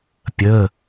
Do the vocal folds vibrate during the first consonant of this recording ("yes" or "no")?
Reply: no